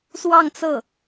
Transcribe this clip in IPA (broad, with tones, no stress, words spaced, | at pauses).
swɑ˥˧ŋt͡sɤ˥˩